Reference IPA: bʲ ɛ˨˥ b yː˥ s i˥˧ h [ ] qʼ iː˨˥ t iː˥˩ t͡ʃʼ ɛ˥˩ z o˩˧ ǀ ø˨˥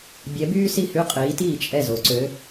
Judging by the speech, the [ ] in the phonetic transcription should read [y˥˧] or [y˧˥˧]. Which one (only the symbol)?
y˧˥˧